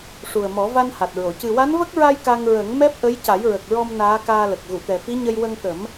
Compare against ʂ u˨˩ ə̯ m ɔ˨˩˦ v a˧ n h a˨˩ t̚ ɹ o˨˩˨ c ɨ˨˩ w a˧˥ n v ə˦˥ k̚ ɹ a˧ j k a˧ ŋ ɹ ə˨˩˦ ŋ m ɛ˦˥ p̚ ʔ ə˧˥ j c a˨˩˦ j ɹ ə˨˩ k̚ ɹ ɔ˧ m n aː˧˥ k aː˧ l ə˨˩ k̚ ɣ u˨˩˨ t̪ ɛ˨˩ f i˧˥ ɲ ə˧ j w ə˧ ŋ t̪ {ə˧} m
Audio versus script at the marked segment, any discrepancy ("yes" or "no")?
yes